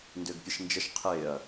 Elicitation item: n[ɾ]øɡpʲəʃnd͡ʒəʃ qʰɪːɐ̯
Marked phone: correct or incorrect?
incorrect